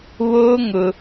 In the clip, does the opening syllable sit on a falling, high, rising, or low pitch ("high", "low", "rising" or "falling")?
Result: high